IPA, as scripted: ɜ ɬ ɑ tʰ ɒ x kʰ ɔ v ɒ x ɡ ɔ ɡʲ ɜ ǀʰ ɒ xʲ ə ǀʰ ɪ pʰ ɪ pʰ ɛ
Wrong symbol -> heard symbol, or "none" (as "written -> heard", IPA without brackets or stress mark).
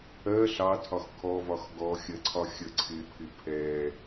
ɡʲ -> xʲ